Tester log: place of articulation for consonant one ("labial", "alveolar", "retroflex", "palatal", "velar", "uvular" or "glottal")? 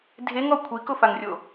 alveolar